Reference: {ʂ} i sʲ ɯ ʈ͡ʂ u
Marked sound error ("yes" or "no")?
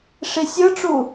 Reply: no